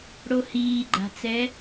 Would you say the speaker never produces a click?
no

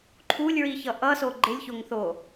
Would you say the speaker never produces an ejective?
yes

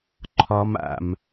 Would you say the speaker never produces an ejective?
yes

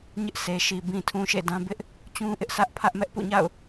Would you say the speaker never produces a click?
yes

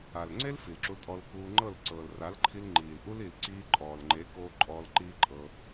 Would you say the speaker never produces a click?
no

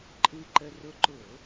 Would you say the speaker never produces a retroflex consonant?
yes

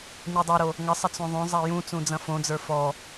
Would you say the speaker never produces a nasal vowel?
no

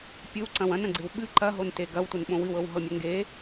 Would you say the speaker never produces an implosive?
no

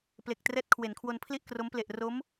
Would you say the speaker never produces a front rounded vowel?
yes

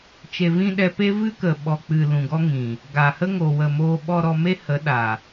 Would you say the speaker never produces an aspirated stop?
yes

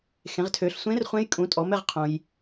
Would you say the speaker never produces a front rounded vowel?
no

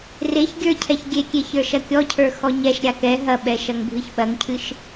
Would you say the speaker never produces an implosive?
no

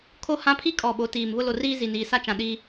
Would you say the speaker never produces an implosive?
no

